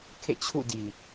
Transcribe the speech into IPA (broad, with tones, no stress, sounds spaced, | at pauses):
kʰ ḛ˦˨ t͡ɕʰ ṵ˦˨ d i˨